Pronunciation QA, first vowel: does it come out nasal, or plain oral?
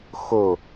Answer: oral